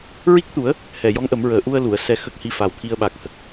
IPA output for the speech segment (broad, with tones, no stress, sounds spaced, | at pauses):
ɹ i˦˥ k̚ t̪ u˨˩˦ ə̯ | h ɛ˨˩ j ɔ˧˥ ŋ ʔ ə˨˩˦ m ɹ əː˨˩ ʔ u˧ ə̯ l u˨˩˨ ə̯ s ɛ˧ x ə˦˥ k̚ h i˧ f a˨˩ w t̪ʰ i˧ ə̯ ɓ a˨˩ k̚ h ə˦˥ k̚